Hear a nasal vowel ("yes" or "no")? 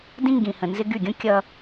yes